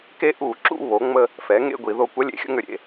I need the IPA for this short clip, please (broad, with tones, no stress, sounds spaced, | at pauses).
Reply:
k e˦ ʔ u˧˩˧ ǁ ṵ˦˨ β o˩˥ ŋ͡m ə˦ | f ɛ˩˥ ŋ ḛ˦˨ ɡʷ i˧˩˧ ð o˦˨ kʷ ɐ˦ lʲ ḛ˩˥ xʲ ə̰˦ ŋ ʏ˧˩˧ ɾʲ ḛ˩˧˩